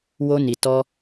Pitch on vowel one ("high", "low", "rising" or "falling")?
high